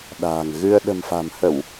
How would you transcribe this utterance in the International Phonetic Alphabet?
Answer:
ɗ a̤ː˨˩ ŋ ɣ ɨ˧ ə̯ ɗ ə̤˨˩ m f a̤˨˩ m h ə˧˩˨ w

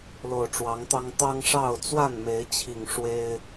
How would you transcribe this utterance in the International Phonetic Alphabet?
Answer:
l o˨˩ ʊ̯ ʈ͡ʂ w ɑ˨˦ ŋ t̪ ɑ˦ ŋ t̪ ɑ˦ ŋ ʂ ɑ˥˨ ʊ̯ t͡s w a˥˨ n m e˨˦ ɪ̯ t͡ɕʰ i˨˩ ŋ ʂ w e˦ ɪ̯

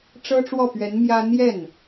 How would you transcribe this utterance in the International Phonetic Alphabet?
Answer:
ʈ͡ʂ ɤ˥ ʈ͡ʂ w ɔ˥˩ p ɥ ɛ˧˥ n m j ä˥ n̪ j ɛ˥˩ n

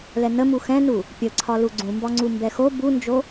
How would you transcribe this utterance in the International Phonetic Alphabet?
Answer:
l ɛ n ə m u x ɛ̃ n u | pʲ ə ǀʰ ɒ l u ɡ͡ǀ ũ m b ɒ ŋ͡ǀ u m b ɛ x o b u n d͡ʒ o

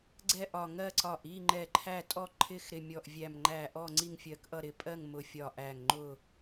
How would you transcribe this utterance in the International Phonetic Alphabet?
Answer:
ɡ͡ǀ ɛ˥˨ ʔ ɒ˧˩ ŋ ɜ˥˨ ǀ ɒ˧˩ ʔ i˥˨ ŋ͡ǃ ɛ˧˩ ǃʰ æ˥˨ tʼ ɔ˥˨ ǃʰ ɪ˥˨ x ɾ ɪ˧˩ mʲ ɔ˧˩ ʔ vʲ æ˧˩ m ŋ͡ǃ æ˧˩ ʔ ɔ˥˨ ŋ͡ǀ i˥˨ ŋ fʲ ɜ˧˩ k ʔ ʌ˥˨ ɾ ɪ˧˩ pʼ ɜ˥˨ ŋ m ʊ˧˩ fʲ ɒ˧˩ ʔ æ˧˩ ŋ ŋ͡ǃ ʊ˥˨

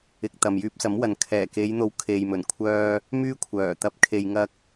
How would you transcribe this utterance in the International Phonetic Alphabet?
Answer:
ɪ˧ k̚ t̪ ɐ˨ m j yː˧ p̚ s ɐ˨˥ m w ɐ˨ n kʰ ɛː˨˩ k e˨˧ j n̪ o˨˧ w kʰ e˨ j m ɵ˨˩ n kʷʰ œː˥ | m yː˥ kʷʰ œː˨˩ t̪ ɐ˧ p̚ kʰ e˧ j ŋ ɐ˥ k̚

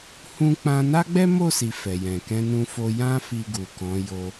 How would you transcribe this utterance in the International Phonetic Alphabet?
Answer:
h ũ˦ k͡p ã˦ n a˦ ɡ͡b ɛ˦ m o˦˨ s i˨ f ɛ˨ j ɛ̃˨ k ɛ̃˧ n ũ˧ f o˧ j ã˦ f i˧ ɡ u˨ k ɔ̃˨˦ j o˧

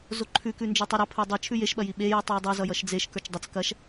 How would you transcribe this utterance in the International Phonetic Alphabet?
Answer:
z o ǃʰ ʉ k ʉ n d͡ʒ ə˞ tˤ i ɾ ʌ pʰ ə˞ dˤ e t͡ʃʰ ʉ j e ʃ ɓ ɐ j i ɓ e j ʉ tˤ j i dˤ ə˞ z ʌ j ʌ ʃ d͡z e ʃ k ə˞ t͡ʃ dˤ ʌ t͡s k ɐ ʃ

